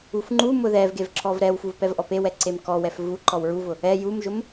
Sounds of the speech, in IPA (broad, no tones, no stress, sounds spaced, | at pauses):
u f ŋ͡ǃ u m ʊ ð ɛ v ɡ e v ǁ ɔ v ɾ ɛ w f u v p ɛ v ʔ ɔ p e w ɛ ǀ e m k ɔ w ɛ f v u ǃ ɔ w ɹ u v ʊ | ɛ j u m ʒ ʊ m